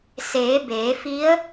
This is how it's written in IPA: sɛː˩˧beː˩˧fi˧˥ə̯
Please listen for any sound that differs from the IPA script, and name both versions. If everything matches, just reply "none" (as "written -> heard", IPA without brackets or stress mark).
ɛː˩˧ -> eː˩˧